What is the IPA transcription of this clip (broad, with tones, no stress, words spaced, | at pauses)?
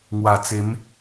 ŋwa˨˩t͡se˨˦m